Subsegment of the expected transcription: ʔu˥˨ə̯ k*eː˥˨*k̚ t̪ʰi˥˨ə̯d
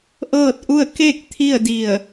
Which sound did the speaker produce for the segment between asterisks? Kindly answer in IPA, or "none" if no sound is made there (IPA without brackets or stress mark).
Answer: e˥˨